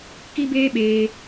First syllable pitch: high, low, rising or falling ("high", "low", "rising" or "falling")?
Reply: high